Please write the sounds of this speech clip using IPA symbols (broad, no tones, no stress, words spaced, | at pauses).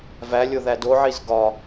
vælʲo ðædoʕiz ɡɒ